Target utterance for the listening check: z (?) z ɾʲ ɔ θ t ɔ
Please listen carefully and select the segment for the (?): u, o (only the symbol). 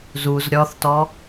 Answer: u